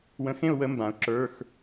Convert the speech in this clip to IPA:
wə̃˧xẽ˥˧ʊ̯wə˨˥ mbã˩˧ʊ̯ ǁə˞˩˧˩x

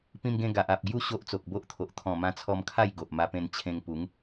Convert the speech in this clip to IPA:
pĩ˧mɡẽ˧ ɡa˨ʔ a˨p̚ɡju˥˧ ɕo˦ʔt͡so˨k̚bo˦ʔt̪ʰo˨ʔ t̪ʰɔ̃˨˩mã˧t͡sʰɔ˧mkʰa˥˧j ɡo˨ʔ ma˧pẽ˧n t͡ɕʰẽ˧ŋ pu˨˦ŋ

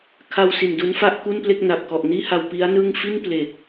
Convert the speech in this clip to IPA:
kʰa˧w si˨˩ndu˦˥n fa˥˩ʔku˥˩nple˥˩k̚na˨˩p̚ kɔ˨˩ʔniː˥˩ha˧w pi˦˥a̯nɯ˥˩ŋ fi˥˩nple˨˩k̚

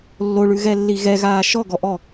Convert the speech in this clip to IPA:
lːoɭʉɣɛlːi ɣɛɣaː ʃɔɡɔʔɔ

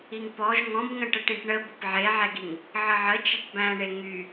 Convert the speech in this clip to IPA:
iŋpɔʒ ŋɔ̃bŋə̃ ʈəʈĩʈɳə bəpʕeʕɛɡiŋ | ʕəʕə t͡ʃɛʈbæ̃ɳe ŋy

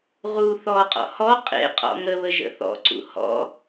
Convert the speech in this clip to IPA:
ʁu θɔqʼɔ̰ hɔ qʼḛqʼɔ̰ ŋəβə ʒə̰θɔ̰ǀṵ hɔ̰

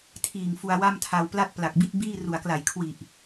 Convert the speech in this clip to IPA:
tʰiː˨˩ŋfu˧a̯wa˥˩mtʰa˧w pla˥˩t̚pla˨˩k̚ bi˥˩t̚ biː˥˩ ru˨˩a̯kla˨˩j kʰwi˨˩ʔ

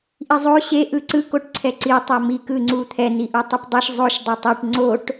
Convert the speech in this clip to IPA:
ʔizˤo ɕe ʔɯǀɯ koʈǀʰɛǀi tˤomi kɯŋ͡ǀut̪ʰɛ n̪iʔutˤipdˤeʃ zˤoʃ dˤotˤiʈ ŋ͡ǀoʈ

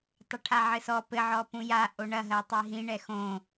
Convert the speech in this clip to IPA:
tˤɐʈʰaʕɘsɔ pɘ ʕɔpũja ʔoɳɐ ɦɜtˤiɦĩ ɳɛxõ

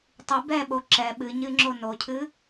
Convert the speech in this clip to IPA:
tˤɨ bɛɓo ǁɛ ɓɨɲɨŋ͡ǁo nocʰɨ

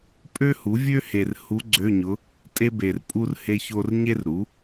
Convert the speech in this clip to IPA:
pʼø˥hu˩˥vʲø˥he˨r hu˧˥ɡ͡ǀø˧˥˧ɲʊ˧˥ | tʼe˥be˨rpʼu˥r he˥ço˥r ɲe˥rɾu˩˥

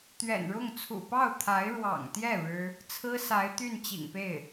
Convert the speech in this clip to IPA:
t̪ɥɛ̰˨˩nɻʊ˥˩ŋ t͡sʰṵ˨˩pɑ˥˩ʊ̯t̪ʰa˧˥ɪ̯ ɻwɑ̰˨˩ŋt̪jɛ˥˩ ɻɻ̩˥ | t͡sʰɹ̩˥sa˧˥ɪ̯t̪y˥˩n t͡ɕḭ˨˩ŋpe˥˩ɪ̯

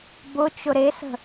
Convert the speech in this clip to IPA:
bʊ t͡ʃʊɾesə̤

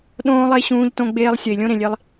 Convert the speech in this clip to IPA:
ɗõː˧lˠe˧ ɕũː˧ʎtõ˧ɡ͡beː˧lˠ sʲɐ˨i̯lʲõ˦ ɾẽ˨lʲe˦lˠ

